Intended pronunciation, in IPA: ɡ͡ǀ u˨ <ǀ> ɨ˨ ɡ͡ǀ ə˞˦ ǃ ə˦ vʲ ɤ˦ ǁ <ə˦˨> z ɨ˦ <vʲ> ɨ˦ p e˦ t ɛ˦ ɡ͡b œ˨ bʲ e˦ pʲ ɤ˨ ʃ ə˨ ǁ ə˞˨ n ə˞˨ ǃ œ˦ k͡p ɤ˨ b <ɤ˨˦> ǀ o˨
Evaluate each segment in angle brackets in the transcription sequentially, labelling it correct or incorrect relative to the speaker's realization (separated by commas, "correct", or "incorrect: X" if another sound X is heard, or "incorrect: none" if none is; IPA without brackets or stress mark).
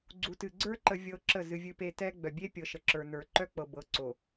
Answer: incorrect: t, correct, correct, correct